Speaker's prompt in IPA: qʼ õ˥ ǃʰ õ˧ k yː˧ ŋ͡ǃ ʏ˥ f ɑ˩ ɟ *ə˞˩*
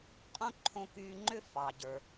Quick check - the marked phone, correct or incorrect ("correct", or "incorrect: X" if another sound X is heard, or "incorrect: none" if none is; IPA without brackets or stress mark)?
correct